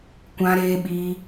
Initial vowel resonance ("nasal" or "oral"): nasal